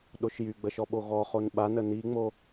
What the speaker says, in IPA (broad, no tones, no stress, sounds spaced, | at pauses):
ɗ o ʃ j y ɡ͡b ə ʃ ɔ ɓ o ɣ ɔ χ o n ɓ a n ə n i ŋ͡m o